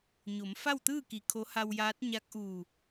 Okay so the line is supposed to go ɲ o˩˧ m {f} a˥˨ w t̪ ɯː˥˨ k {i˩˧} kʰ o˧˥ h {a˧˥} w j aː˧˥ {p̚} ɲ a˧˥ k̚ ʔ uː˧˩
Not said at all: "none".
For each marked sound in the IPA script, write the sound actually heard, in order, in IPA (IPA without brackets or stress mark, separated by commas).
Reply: f, i˩˧, a˧, t̚